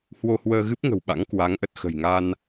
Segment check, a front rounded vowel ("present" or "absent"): absent